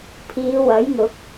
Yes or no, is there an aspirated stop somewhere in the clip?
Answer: yes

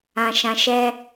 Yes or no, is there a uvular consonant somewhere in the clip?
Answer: no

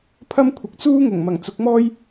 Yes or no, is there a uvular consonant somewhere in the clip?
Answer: no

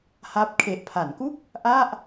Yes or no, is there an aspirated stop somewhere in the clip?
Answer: yes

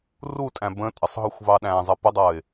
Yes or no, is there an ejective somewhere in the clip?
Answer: yes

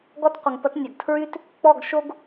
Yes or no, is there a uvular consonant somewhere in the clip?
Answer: yes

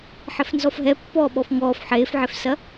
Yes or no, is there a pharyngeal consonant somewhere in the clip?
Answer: yes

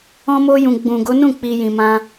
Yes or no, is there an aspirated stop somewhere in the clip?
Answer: no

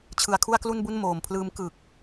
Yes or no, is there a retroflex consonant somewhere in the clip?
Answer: no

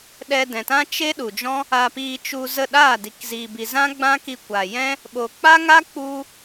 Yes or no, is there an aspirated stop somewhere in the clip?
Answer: no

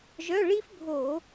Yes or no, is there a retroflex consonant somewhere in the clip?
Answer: yes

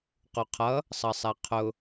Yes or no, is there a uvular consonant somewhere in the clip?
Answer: yes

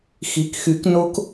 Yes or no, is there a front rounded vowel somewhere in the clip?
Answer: yes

